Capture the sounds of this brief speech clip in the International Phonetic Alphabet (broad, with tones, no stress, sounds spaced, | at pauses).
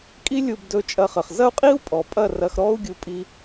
kʼ i˦ lʲ u˧ b d ɵ˧ t͡ʃʼ ɐ˧ χ ə˨ χ z ɐ˦ u̯ qʼ i˦ u̯ pʼ ɔ˨ pʼ ɐ˦˨ r ɐ˧ x ɾ ɔ˦ u̯ ɡʲ u˧ pʼ i˧